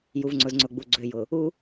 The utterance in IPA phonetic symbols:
j u˨ v ŋ͡ǀ ʊ˨ z ŋ͡ǀ ʊ˨ ɡ͡b u˨ ɡ͡ǀ ø˨ j ʊ˨ | u˦

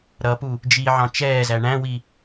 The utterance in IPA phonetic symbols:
ɾ ʌ p u | d͡ʒ i ʕ ɑ̃ t͡ʃ ɛː z æ ɳ æ̃ w i

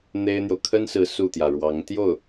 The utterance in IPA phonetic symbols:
n̪ e˥ ɪ̯ n̪ j o˨ ʊ̯ kʰ ə˥ n s ɹ̩˧˥ s u˥˩ t̪ j ä˩ ɻ w ɑ˧˥ ŋ t̪ j o˥˩ ʊ̯

